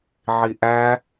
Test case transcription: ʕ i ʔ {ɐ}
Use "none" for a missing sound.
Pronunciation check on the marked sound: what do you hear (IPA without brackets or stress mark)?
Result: æ